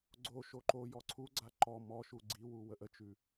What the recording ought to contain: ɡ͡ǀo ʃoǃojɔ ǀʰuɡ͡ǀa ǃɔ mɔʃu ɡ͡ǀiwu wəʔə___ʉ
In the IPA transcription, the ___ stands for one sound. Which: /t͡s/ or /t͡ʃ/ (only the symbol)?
t͡ʃ